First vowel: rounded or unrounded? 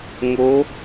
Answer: rounded